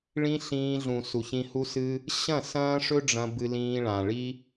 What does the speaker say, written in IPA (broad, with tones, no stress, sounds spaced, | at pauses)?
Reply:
ɭ ĩ˦ ɬ ĩː˧ ɮ ũ˨ s u˨ ç ĩ˧ h u˦ s ɨ˦ | ɕ ɐ̃˦˨ s ɐ̃ː˦ ʂ ɵ˦ ɖ͡ʐ ɐ̃˧ b ɨ˧ l ĩː˧ ɭ ã˨ ɭ i˦